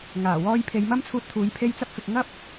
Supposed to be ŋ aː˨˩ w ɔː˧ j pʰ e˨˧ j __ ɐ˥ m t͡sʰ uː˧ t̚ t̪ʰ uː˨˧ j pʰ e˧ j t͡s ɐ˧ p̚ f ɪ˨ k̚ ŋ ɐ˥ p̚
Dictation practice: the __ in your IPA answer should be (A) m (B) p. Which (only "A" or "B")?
A